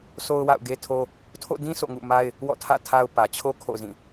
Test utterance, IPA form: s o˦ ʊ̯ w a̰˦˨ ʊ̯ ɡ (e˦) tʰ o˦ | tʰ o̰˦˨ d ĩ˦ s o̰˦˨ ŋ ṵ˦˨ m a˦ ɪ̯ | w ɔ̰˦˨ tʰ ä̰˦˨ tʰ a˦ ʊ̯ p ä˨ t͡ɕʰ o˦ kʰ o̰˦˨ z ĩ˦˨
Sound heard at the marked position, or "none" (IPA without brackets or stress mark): e˦